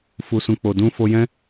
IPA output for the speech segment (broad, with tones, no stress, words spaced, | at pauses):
fu˨sũ˨k͡po˨ dũ˧ fo˧jɛ̃˦